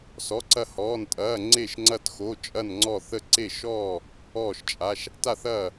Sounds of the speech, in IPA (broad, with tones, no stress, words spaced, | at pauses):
sɔ˧˥˧ǀɐ˥˨hɔː˧˥˧ntʼɐː˧˥˧ ŋ͡ǀe˥˨ʃŋ͡ǀɐ˥˨txo˧˥˧ t͡ʃʼɐ˥˨nŋ͡ǀɔ˥˨θə˥˨ ǀe˥˨ʃɔː˥˨ | ɔː˥˨ʃt͡ʃʼa˧˥˧ʃ | ta˥˨θɐː˥˨